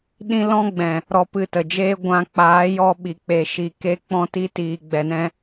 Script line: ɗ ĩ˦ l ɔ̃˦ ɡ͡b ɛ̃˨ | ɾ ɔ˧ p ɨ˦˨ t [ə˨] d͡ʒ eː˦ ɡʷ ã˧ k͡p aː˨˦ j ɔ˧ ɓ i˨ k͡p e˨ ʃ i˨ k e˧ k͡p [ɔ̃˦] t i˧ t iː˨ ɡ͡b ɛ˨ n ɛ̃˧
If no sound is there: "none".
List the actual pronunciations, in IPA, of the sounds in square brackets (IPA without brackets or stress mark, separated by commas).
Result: ə˨, ɔ̃˧